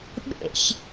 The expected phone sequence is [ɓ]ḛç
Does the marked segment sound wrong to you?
no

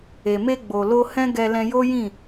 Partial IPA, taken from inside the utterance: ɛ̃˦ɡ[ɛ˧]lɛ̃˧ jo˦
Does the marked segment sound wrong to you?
no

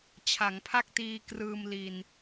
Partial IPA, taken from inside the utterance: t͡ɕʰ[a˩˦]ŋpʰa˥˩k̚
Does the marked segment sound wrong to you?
no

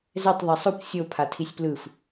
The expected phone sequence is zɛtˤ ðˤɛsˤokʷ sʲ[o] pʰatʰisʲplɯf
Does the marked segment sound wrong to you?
no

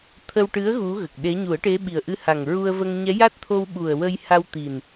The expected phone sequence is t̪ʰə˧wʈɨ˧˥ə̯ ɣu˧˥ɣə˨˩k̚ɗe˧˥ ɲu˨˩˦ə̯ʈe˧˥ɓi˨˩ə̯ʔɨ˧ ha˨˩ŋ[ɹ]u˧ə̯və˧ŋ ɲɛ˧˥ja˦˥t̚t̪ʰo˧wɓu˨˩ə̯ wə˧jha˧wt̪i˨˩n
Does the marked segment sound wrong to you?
no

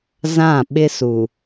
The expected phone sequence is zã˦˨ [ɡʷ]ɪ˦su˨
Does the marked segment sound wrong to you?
yes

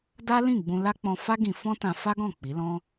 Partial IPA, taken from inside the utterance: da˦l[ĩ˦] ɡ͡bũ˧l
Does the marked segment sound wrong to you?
yes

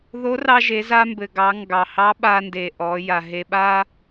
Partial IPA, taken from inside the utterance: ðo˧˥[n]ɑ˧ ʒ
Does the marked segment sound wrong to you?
yes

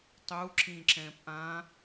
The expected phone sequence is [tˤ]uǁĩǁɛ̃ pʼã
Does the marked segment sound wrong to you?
no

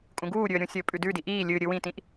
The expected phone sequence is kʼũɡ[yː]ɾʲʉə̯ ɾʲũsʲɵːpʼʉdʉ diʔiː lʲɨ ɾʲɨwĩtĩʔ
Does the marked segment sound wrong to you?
yes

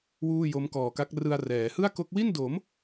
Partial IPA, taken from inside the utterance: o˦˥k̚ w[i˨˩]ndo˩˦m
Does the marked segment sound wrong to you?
yes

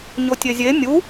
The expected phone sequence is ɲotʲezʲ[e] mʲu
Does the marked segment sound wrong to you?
no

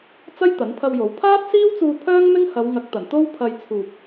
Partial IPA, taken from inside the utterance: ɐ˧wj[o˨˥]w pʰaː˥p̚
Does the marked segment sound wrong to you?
no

